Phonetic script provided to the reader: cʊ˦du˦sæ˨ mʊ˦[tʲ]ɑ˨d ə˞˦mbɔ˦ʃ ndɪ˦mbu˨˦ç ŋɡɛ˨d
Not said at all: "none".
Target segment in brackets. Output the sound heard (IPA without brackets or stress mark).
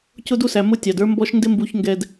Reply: tʲ